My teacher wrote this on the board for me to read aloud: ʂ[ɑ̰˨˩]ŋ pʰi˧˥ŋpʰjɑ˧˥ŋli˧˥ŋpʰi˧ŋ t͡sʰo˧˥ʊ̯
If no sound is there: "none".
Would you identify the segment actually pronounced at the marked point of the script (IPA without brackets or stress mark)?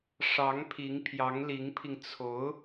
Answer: ɑ˧˥